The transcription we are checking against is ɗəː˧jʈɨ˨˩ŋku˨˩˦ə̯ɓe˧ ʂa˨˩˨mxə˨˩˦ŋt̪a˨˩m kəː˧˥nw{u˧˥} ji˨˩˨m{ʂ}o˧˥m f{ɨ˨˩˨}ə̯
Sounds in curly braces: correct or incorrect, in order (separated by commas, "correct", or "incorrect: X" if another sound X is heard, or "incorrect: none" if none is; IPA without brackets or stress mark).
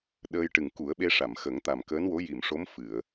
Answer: incorrect: o˧˥, correct, correct